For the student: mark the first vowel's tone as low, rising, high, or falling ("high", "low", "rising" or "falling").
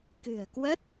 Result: low